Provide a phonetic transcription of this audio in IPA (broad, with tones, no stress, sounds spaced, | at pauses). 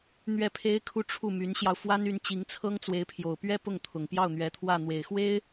n̪ ɥ ɛ˥˩ pʰ e˥ ɪ̯ kʰ u˥˧ ʈ͡ʂʰ u˥˩ m y˧˥ n ɕ j ɑ˧ ʊ̯ f w a˥ n y˧˥ n t͡ɕ i˧˥ ŋ t͡sʰ ɤ˥ ŋ t͡s w e˧˥ ɪ̯ pʰ j o˨˩ ʊ̯ p ɥ ɛ˥ p ʊ˥˩ ŋ t̪ʰ ʊ˨˩ ŋ p j ɑ˥˩ ʊ̯ n̪ ɥ ɛ˧˥ t̪ʰ w ä˥˩ n̪ w e˨˩ ɪ̯ x w e˥ ɪ̯